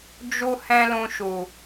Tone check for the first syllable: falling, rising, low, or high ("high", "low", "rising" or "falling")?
high